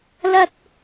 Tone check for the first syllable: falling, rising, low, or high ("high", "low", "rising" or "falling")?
high